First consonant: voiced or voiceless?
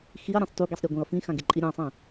voiceless